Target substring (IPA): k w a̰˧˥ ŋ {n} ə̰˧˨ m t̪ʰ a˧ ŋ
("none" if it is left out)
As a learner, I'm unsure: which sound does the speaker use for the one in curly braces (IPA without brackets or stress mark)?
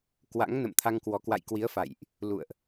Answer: n